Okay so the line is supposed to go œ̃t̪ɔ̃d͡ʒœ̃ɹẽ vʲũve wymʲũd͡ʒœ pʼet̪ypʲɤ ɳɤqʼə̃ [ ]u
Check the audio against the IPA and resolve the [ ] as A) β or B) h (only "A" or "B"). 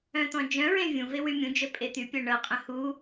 B